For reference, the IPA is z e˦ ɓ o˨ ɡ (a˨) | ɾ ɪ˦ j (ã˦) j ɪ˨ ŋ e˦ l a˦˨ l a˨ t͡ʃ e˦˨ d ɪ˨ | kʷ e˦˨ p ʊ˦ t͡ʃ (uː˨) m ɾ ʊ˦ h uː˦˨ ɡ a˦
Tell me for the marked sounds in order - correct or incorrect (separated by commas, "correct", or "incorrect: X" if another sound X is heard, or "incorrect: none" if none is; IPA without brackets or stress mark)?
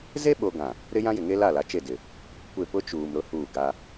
incorrect: ã˨, correct, correct